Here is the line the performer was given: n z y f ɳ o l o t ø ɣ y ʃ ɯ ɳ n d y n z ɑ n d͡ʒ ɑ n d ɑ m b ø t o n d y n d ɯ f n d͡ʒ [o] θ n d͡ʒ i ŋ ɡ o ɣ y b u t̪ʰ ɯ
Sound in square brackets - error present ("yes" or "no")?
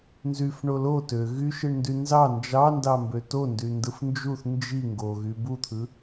yes